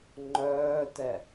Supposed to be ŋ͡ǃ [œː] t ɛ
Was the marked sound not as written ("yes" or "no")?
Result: no